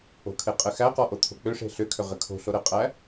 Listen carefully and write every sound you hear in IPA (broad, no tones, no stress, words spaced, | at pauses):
o̤kʰe qʼɘxæqɔ ʔot̪ʰo̤k͡pʏʂe̤ ɬʏ kʰʏʁɘkʰo̤ɬo ɾɘqʼæ